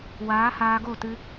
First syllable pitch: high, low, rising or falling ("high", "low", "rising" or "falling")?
rising